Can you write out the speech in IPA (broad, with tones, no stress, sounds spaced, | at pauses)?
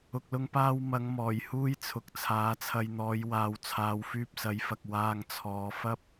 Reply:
ʊ˨ k̚ l ʊ˧ ŋ p aː˧ w m ɐ˨˧ ŋ m ɔː˨˩ j h uː˥ j t͡sʰ ʊ˨˥ k̚ t͡sʰ aː˨˥ t͡sʰ ɐ˧ j n̪ ɔː˨˧ j w aː˨ w t͡sʰ aː˨˧ w f yː˧ p̚ s ɐ˨˥ j f ɐ˨ k̚ w aː˧ ŋ t͡sʰ ɔː˨˧ f ɐ˥ p̚